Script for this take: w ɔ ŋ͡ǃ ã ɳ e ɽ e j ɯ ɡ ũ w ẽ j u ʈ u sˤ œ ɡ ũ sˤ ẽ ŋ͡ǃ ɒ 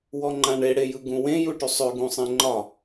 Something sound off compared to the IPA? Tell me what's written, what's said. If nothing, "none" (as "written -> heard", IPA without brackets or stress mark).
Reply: œ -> ø